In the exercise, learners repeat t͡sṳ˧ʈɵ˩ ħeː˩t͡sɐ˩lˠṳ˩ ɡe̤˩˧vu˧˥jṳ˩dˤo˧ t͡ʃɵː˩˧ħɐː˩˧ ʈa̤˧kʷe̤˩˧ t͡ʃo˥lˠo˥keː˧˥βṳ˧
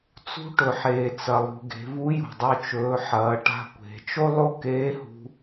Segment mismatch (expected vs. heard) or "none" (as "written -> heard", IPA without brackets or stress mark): β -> h